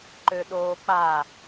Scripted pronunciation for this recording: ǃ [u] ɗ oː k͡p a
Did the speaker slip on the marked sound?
yes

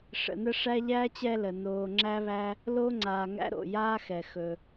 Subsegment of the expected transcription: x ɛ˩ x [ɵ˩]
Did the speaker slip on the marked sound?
no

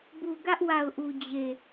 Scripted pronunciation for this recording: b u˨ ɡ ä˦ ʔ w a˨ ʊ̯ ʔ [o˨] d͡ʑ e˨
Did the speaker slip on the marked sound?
yes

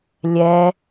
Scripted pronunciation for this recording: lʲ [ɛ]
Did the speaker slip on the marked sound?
no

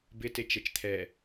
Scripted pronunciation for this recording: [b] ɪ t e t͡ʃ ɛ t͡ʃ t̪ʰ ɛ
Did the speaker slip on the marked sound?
no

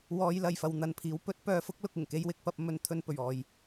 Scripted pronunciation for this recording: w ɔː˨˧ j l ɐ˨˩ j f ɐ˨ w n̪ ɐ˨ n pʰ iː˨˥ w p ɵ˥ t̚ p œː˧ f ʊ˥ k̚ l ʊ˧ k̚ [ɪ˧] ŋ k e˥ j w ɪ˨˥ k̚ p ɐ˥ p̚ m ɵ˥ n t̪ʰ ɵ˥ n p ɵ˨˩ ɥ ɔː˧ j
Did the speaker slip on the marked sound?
yes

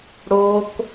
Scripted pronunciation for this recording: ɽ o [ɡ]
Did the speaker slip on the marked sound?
yes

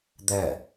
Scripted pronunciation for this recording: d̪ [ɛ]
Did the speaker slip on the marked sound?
no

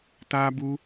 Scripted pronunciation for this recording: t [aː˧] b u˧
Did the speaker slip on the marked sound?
no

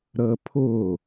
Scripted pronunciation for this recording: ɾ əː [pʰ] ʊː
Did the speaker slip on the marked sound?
no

